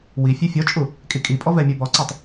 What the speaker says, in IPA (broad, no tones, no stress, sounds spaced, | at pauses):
w i fʲ e fʲ ɔ t͡ʃʼ u | kʼ i kʼ i pʼ ɔ v ɛ mʲ u b ɔ ǀ ɔ tˤ